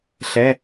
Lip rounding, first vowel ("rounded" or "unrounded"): unrounded